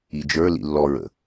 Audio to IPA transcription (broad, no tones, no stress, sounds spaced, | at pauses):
i d͡ʒ ə˞ l ḭ lː ɔ ɹ ə̰